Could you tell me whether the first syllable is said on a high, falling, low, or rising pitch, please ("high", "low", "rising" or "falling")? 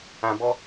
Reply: low